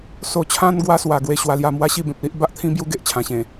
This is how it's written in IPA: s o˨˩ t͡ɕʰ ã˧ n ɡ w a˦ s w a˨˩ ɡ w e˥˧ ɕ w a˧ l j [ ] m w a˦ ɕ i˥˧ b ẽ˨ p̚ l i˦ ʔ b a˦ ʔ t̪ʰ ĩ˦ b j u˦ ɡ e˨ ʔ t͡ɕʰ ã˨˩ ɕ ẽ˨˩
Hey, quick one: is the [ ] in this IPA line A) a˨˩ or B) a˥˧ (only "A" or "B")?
B